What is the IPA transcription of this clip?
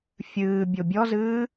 fʲɨː bʲobʲɔzɨː

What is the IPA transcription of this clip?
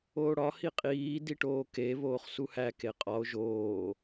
oːɽɒ hiqʼiː diʈoːke βoːχsuhæ keqʼɒo̯ ʒoː

